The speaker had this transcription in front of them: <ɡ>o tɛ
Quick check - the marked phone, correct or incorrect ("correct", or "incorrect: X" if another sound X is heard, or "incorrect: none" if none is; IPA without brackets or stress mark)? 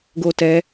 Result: correct